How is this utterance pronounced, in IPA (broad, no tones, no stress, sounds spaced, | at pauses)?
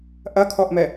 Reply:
ʔ ɐ kʰ ɔ ʔ m ɛ